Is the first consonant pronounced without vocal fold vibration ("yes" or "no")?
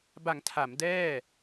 no